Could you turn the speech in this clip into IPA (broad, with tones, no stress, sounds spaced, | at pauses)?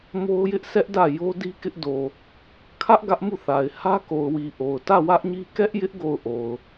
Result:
m o˦ ʊ̯ j ɪ˦ ʔ sʰ ɛ˦ ʔ d ä˦˨ j o˦ d i˦ k ɪ˦ ʔ d o˨ | kʰ ä˦ ʔ ɡ ä˦ ʔ m u˦˨ θ a˨ ɪ̯ h ä˦ k o˨ ʊ̯ w i˨ ʔ o˨ ʊ̯ t ä˦˨ w ä˦ ʔ ɲ i˦ k ɛ˦ ʔ j ɪ˦ ʔ ɡ o˦˨ ʊ̯ ʔ o˨ ʊ̯